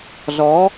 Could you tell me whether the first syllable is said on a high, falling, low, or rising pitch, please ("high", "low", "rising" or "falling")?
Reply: rising